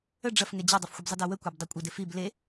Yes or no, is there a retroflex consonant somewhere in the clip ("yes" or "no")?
yes